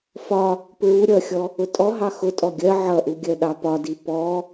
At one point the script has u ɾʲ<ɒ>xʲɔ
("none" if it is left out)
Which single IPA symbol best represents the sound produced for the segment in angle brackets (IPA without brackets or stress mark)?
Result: ʌ